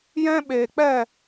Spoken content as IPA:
j ɛ̃˦ ɓ eː˨ k͡p ɛ˦˨

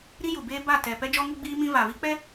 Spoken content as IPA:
ɾ i˦ j u˨ b eː˦ b a˦˨ t ɛ˨ p ɛ˦ d͡ʒ ɔ˦ ŋ u˦ ɡ͡b iː˦ m ĩ˦ v a˨ v i˦ k͡p ɛ˦

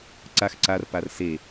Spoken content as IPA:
ǀ a x ǀ a r p a r s e

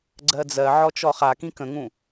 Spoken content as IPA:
ɡ͡ǀ ɜ d͡z ɜ ʕ ɔ t͡ʃ ɔ χ a k ĩ k ə̃ ŋ ũ

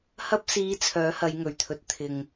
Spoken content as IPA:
h ɐ˧ p̚ s iː˨˧ t͡sʰ œː˨˥ h ɐ˨˧ j ŋ ɵ˨˩ ɥ t̪ʰ ɵ˨ t̚ t̪ʰ ɪ˨ ŋ

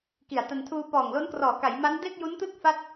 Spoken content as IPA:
k i˨˩ a̯ t a˧ n tʰ uː˧ p ɔː˨˩ ŋ l o˦˥ n k r ɔː˨˩ k a˩˦ j m a˦˥ n d e˥˩ k̚ j u˦˥ n t ɯ˥˩ k̚ f a˥˩ t̚

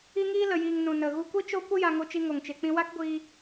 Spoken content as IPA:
i˧ ŋ iː˧ l ə˨ j iː˨ ŋ n ũ˨ n ə˨ ɣ u˧ kʷ i˦ t͡ʃ o˦ kʷ ə˦ j a˧ ŋ o˧ t͡ʃ i˧ ŋ o˨ ŋ t͡ʃ e˨ k͡p ĩ˧ w a˦ k ɡʷ iː˧

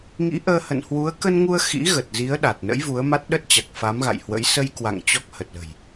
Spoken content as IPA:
ŋ ḭ˧˥ ʔ əː˧ h ə̰˧˨ n h w u˨˦ ə̯ k ə˧ n ŋ u˧ ə̯ x ḭ˧˥ ɣ ə˨˩ t̚ z i˨˦ ə̯ ɗ a˨˩ t̚ n ə̰˧˥ j v u˨˦ ə̯ m a˦˥ t̚ ɗ ə˦˥ t̚ t͡ɕ a˨˩ k̚ f a˨˦ m ɣ a̰˧˨ j h w ə̰˧˥ j s ə˧ j k w a̰˧˨ ŋ t͡ɕ ɔ˦˥ k̚ h ə˨˩ t̚ l ə̤˨˩ j

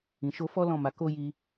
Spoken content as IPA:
ĩ˨ ʃ o˧ f ɔ˦ l ɔ̃˦˨ m a˨˦ k o˦ j i˧

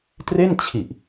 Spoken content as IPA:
t r e˥˩ n t͡ɕʰ i˨˩ ʔ

